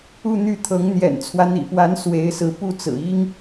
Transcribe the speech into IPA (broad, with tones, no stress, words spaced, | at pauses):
u˥˧n̪y˥˩t̪ʰɤ˧˥ŋ n̪jɛ̰˨˩nt͡sʰwä˦n̪ḭ˨˩pwa˧˥n swe˧˥ɪ̯sɹ̩˧˥ pu˥˩t͡sɹ̩˨˩i˥ŋ